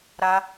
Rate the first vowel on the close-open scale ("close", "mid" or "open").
open